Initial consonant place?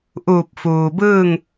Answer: glottal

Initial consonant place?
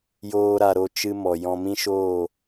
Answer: palatal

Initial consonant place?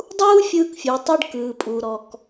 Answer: alveolar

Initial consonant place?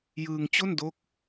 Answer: palatal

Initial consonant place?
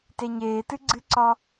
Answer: alveolar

